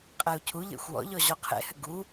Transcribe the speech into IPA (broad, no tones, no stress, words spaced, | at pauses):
qʼɛu̯cʰuʎḛxʷ wɔ̰ʎɔ ʑɔqʰḛhɘ ɡu